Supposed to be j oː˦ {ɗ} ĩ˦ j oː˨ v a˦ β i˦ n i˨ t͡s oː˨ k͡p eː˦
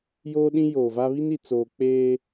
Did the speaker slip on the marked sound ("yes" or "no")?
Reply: no